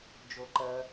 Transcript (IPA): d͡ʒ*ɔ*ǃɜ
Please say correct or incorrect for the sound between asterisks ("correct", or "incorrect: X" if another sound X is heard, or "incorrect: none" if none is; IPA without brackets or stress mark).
incorrect: o